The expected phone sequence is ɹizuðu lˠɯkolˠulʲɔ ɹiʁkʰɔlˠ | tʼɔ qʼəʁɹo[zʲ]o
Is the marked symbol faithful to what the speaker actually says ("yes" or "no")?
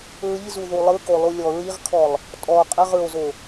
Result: no